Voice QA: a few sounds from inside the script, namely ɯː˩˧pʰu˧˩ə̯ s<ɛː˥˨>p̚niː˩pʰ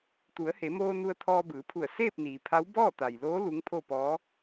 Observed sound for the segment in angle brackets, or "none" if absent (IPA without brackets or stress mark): eː˥˨